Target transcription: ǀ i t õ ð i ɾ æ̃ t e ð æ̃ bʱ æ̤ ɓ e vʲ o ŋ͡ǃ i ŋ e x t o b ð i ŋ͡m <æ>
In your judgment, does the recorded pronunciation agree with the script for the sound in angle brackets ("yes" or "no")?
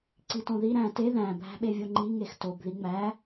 yes